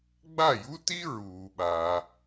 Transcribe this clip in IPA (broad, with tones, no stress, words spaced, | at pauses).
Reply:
ɡ͡ba˥˩ju˥ti˥ ɹuː˩ɓa˩